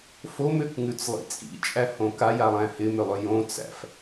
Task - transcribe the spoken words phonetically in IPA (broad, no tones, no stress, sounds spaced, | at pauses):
f o m ʏ k ŋ ʉ t͡s lˠ ḭ t͡sʼ ḭ t͡ʃʼ æ h õ k a j a lˠ æ̃ h ɪ m ʏ lˠ ʏ j õ t͡s æ̰ f